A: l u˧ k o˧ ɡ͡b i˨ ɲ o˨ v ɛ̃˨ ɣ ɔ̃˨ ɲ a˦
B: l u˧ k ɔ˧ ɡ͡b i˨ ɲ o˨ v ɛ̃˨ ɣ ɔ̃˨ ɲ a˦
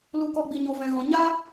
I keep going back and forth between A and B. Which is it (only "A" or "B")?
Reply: B